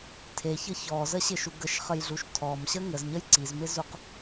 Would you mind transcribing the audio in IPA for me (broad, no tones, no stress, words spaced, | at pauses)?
tʰeçɤ çɔzəɕɪʃu ɡəʃχəjɮuʃ tʰɔmɕə ŋəzɲəj ǀizmɪzuq